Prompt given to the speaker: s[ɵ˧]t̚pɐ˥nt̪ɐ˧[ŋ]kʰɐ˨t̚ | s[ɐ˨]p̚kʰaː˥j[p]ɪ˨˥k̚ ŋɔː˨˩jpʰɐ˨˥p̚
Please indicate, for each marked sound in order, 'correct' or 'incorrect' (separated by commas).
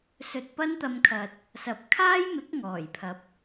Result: correct, incorrect, incorrect, incorrect